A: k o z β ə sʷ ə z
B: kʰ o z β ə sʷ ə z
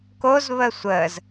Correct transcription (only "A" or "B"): A